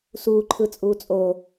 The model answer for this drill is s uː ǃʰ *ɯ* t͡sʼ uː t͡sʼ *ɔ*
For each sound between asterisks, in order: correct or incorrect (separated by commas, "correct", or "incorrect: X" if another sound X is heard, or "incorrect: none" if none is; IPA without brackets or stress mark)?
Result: correct, incorrect: o